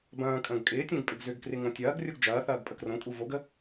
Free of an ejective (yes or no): no